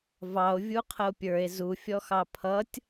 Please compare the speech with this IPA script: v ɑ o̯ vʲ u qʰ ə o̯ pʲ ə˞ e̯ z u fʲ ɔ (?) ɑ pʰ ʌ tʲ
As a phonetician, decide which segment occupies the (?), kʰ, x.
x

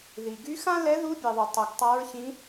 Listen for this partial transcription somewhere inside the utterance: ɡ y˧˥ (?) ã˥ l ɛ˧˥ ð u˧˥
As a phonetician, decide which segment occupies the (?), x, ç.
x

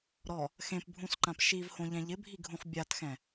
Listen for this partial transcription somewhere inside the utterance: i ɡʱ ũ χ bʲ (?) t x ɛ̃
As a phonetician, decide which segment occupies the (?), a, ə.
a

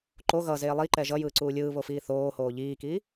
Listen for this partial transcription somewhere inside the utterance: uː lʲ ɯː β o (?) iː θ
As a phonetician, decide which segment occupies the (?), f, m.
f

